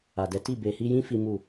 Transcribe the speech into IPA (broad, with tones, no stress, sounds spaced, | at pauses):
a˨ d ɛ˨˦ t i˦˨ b e˨ h i˧ j ĩ˦ f i˦ m u˦˨